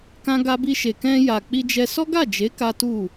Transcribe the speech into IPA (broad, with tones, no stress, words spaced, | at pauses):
kã˧ɡa˧bi˧ʃe˨ kɛ̃˧ja˨k͡pi˧d͡ʒɛ˧ sɔ˦ɡa˦˨d͡ʒe˨˦ ka˦tu˦˨